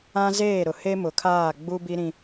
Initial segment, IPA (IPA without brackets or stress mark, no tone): ã